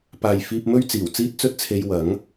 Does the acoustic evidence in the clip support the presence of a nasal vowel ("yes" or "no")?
no